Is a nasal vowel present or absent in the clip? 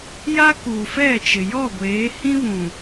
present